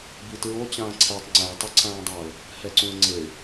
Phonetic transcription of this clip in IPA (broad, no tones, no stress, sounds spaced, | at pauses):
b i t ɹ o t͡ɕ ãː ǀʰ ɛ tˤ ŋ͡ǀ æ tˤ ɘ ǀʰ ãː dˤ a ʊ̯ | h ɛ ǀ ũ ə̯ ŋ͡ǀ ɘ ɪ̯